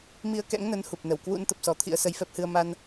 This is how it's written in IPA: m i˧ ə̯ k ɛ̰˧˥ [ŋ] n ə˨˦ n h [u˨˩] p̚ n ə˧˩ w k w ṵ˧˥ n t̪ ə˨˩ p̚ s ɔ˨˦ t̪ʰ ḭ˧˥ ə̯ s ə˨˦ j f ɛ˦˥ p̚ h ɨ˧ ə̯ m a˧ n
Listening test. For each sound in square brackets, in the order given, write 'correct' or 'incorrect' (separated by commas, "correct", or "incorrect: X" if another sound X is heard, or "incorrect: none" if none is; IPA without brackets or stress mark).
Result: correct, correct